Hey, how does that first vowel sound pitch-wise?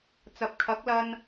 low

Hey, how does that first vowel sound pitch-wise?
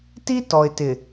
high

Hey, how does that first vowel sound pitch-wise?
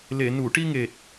low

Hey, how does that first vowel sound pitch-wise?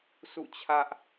falling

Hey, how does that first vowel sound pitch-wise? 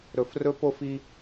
low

